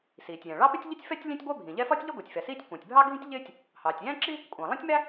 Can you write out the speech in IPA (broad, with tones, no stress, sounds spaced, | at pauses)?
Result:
s iː˩ tʲ j ɛ̃˩ ɭ ɑ˥ p ɪ˥ tʲ ʎ i˥ tʲ f ɛ˥ tʲ lʲ ɛ̃˥ tʲ ɡʷ æ˥ bʱ ĩ˩ ʎ ɛ˥ f ɒ˥ tʲ ʎ ɪ˥ ɡʷ i˩ tʲ f ɛ˩ s iː˥ tʲ kʷ ɑ̃˩ tʲ bʱ ɑ˥ ɡʱ ĩ˥ tʲ ʎ ɪː˥ tʲ | h ɑː˩ tʲ j æ̃˥ ǁ i˥ | kʷʼ ɑ̃˩ lˠ ɛ̃˥ tʲ m æ˥